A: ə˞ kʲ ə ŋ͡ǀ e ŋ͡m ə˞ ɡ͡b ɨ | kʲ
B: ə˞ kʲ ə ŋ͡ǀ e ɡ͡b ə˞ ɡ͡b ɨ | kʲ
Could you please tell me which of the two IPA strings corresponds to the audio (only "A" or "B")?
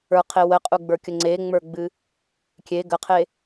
A